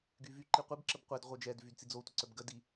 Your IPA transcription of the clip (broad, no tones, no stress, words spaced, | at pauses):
ɡyvy ǃiqʷib ǁəbqʷɛd ʁʷœd͡ʒɛd vydt͡sid͡zo tʷəǀœbɡə di